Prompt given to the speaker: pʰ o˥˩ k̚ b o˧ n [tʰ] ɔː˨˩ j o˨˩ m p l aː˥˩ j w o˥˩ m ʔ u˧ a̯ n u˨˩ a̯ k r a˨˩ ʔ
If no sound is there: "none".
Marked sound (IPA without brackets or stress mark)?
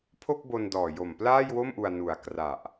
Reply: d